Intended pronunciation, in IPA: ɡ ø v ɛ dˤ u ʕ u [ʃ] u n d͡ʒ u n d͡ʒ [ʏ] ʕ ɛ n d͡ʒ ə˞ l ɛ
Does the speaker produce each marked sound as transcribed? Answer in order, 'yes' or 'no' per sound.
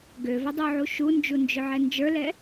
yes, yes

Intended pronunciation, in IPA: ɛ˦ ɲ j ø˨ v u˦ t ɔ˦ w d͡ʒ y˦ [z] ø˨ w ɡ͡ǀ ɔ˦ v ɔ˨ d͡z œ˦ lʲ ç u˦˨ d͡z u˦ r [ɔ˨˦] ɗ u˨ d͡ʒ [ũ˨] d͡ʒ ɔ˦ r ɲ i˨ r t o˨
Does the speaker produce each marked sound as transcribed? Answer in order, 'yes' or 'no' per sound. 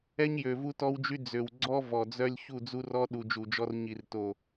no, no, no

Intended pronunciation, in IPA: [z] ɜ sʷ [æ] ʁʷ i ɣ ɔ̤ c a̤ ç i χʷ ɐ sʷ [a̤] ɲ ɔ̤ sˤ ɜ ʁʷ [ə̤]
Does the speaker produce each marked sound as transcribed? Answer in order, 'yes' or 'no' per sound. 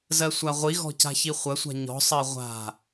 yes, no, yes, no

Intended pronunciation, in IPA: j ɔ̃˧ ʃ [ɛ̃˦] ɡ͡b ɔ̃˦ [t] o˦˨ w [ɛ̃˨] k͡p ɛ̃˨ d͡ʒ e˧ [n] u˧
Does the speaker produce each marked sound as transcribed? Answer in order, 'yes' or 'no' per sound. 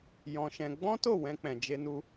no, yes, no, yes

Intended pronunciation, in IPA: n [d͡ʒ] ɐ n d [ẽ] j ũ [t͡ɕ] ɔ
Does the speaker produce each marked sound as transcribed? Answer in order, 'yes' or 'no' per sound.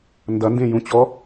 no, yes, yes

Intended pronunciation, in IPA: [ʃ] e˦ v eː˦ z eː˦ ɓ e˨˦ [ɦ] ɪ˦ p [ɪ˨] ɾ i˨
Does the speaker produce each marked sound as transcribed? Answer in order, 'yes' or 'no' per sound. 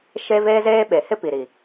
yes, no, no

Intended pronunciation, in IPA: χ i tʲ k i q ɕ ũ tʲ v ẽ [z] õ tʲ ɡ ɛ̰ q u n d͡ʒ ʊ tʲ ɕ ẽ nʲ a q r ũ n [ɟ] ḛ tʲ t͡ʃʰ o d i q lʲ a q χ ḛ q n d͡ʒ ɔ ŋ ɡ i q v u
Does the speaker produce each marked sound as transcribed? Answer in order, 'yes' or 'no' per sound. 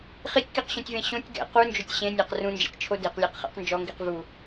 no, no

